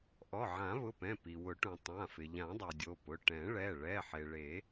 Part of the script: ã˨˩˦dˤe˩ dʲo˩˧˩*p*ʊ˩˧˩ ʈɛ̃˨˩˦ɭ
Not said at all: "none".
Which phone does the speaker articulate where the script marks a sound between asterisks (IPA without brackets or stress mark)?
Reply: p